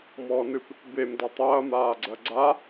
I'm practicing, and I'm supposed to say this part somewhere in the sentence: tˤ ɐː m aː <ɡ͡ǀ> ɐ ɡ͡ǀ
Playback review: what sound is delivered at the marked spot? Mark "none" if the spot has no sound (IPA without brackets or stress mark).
ɡ͡ǀ